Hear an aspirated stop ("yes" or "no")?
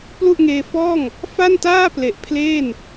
yes